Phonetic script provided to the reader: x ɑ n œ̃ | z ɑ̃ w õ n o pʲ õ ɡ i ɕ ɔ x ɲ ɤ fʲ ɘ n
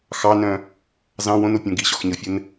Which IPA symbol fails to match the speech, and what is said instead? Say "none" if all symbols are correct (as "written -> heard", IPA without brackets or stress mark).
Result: none